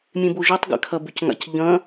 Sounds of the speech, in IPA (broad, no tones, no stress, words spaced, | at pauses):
mʲẽboʒotˤ ɡɛ̰kʰɐbʏc ŋa̰cʎɐ̃